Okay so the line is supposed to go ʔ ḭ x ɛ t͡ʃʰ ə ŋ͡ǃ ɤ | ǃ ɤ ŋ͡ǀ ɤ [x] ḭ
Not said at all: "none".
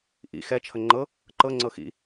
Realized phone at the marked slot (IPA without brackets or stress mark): x